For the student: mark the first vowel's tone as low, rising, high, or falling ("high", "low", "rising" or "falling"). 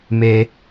low